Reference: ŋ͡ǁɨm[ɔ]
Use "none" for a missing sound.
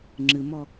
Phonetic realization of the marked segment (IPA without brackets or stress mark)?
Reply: ɔ